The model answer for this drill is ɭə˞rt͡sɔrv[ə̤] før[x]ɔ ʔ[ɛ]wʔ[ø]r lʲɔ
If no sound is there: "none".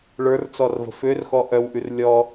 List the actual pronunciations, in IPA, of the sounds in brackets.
ə̤, x, œ, ʉ

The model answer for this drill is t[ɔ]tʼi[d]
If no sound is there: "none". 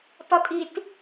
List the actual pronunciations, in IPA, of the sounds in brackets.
ɔ, t

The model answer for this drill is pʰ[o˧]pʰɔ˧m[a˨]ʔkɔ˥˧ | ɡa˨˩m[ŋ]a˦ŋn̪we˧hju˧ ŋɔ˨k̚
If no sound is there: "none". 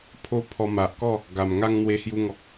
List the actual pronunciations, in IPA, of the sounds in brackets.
o˦, a˨, ŋ

